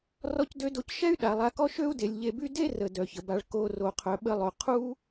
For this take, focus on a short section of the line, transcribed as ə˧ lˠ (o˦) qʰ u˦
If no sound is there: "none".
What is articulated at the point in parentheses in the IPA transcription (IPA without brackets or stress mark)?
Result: o˨